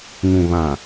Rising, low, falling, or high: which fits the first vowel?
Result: low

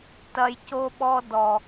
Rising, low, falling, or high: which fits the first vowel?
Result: low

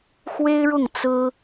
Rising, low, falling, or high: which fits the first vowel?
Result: high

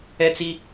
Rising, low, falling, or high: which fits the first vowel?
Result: high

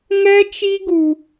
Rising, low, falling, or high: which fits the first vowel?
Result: high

